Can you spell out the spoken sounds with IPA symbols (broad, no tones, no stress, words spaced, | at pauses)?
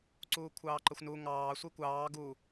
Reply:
ǀuːkʷʰɑːǃəxʷnu ŋɑː sʷikʷɑː ɡu